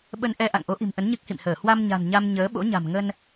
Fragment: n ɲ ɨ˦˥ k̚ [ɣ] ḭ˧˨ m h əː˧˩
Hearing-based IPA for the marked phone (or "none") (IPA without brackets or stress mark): h